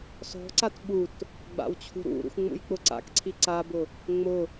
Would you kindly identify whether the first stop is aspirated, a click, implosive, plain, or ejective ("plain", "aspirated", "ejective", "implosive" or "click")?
click